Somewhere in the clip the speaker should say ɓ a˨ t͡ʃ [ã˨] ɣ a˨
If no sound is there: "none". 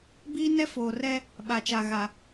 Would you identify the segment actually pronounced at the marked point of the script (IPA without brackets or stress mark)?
a˨